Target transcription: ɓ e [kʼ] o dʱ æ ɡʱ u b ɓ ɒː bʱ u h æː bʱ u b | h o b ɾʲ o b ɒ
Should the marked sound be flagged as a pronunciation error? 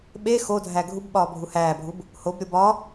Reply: yes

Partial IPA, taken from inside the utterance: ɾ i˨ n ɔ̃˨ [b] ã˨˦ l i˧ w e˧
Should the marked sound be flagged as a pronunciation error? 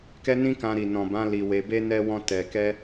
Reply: no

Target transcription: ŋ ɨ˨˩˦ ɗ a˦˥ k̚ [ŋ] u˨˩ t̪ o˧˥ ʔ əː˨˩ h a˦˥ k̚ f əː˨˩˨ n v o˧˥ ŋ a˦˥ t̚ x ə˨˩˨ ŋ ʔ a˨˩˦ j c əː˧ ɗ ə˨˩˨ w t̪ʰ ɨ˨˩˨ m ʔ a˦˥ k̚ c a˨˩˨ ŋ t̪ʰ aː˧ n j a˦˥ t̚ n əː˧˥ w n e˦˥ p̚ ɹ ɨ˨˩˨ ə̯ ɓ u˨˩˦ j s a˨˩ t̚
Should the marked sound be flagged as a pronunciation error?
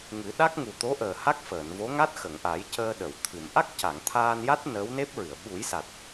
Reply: no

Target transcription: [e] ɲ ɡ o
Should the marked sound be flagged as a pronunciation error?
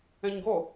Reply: yes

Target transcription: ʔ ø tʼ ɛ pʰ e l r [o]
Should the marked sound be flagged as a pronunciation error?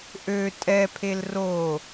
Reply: no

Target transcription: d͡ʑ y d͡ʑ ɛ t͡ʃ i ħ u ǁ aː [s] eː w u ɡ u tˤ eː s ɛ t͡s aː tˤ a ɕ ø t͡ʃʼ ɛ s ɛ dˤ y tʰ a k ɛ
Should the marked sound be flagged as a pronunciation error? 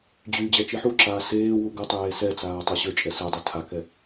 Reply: no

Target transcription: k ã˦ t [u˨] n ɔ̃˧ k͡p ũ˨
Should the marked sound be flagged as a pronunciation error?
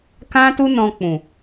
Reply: yes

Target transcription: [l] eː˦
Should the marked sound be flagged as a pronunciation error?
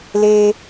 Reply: no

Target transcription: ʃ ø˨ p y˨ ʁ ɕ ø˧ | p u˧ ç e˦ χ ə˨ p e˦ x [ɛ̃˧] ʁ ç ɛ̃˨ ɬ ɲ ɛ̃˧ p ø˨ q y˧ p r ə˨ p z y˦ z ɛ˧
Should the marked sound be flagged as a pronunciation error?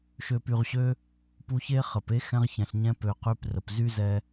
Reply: no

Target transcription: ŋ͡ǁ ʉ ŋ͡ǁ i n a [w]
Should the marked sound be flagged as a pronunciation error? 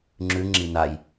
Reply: yes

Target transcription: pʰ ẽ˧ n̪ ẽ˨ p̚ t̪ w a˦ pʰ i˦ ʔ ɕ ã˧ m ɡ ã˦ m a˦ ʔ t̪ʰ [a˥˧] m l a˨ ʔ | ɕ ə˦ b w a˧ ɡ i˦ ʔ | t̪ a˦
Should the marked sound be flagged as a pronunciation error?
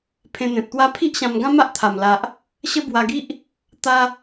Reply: yes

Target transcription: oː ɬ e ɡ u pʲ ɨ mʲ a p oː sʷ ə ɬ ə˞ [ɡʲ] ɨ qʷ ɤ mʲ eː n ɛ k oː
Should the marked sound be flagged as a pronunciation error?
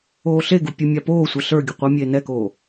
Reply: no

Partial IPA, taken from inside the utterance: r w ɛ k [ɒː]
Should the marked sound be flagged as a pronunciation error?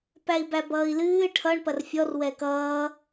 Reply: yes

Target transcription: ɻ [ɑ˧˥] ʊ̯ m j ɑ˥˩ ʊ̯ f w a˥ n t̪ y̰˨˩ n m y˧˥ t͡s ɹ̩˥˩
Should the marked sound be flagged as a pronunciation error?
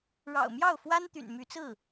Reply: yes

